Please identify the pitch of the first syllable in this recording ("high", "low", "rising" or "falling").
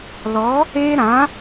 rising